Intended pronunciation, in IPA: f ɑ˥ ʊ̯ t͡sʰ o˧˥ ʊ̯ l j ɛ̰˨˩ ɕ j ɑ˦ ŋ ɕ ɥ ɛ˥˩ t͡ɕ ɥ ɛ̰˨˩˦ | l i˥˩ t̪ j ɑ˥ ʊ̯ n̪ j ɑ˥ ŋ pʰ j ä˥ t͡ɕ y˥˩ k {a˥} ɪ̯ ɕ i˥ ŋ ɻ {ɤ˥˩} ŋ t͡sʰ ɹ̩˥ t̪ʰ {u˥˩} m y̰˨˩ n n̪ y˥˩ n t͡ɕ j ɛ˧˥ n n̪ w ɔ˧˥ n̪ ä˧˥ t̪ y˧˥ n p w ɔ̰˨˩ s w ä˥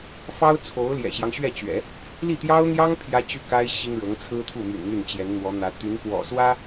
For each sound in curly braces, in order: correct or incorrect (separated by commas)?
correct, incorrect, correct